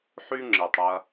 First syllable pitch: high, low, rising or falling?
high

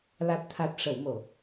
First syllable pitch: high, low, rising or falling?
low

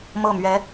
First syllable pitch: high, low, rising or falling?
falling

